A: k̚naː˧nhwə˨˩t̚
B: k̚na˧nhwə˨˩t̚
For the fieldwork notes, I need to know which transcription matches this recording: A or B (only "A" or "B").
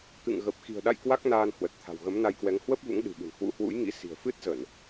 A